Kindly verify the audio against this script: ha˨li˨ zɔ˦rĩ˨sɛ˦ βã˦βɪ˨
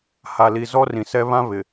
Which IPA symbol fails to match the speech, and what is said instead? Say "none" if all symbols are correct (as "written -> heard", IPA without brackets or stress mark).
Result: none